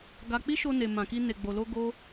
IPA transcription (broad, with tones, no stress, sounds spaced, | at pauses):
ɡ a˧ k͡p i˦ ʃ o˧ n e˨ m ã˨ k i˧ n e˨ ɡ͡b o˨ l o˧ ɡ o˦